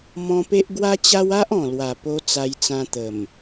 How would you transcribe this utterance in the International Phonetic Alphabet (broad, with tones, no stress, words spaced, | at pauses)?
mɔ̃˧pe˦ʔɡwa˦t͡ɕa˦w a˦ʔ ɔ̃˨˩lwa˨˩ po˧ t͡sa˧jt͡sã˧t̪ə˨˩m